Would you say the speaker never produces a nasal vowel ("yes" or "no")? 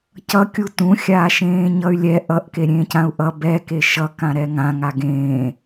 no